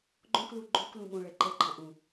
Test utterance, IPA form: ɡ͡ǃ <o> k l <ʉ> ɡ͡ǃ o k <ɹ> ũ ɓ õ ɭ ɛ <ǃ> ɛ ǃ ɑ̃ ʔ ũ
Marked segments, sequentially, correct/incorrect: incorrect: õ, incorrect: u, incorrect: l, correct

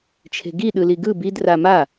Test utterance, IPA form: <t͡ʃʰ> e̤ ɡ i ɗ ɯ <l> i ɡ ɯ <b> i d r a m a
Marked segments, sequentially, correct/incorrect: correct, correct, correct

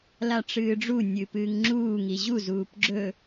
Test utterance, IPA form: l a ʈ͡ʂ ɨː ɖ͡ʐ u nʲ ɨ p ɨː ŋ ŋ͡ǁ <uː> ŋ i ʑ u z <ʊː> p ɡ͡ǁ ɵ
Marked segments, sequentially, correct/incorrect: correct, incorrect: uː

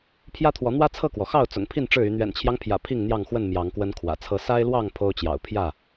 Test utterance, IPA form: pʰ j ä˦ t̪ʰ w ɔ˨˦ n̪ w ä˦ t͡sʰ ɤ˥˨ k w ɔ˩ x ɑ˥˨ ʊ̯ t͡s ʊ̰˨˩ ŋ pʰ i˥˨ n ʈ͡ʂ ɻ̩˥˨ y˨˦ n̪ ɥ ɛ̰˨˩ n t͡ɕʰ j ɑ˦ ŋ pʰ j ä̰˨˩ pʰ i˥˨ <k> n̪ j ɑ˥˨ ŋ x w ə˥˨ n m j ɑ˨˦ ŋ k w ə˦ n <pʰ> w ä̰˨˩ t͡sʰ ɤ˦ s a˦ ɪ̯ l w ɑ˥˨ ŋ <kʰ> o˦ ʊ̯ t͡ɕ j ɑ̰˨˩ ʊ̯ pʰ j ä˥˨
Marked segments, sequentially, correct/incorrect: incorrect: ŋ, incorrect: kʰ, incorrect: pʰ

